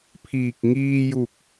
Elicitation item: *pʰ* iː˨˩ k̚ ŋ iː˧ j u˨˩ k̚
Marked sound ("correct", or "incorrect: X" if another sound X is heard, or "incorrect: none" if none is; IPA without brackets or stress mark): correct